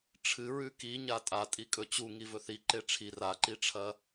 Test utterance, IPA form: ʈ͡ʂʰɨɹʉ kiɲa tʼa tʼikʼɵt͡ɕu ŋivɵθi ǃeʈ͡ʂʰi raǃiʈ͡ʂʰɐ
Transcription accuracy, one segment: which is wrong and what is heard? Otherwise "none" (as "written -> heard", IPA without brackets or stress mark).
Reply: none